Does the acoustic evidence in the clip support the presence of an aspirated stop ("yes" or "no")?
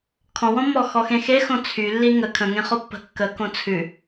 yes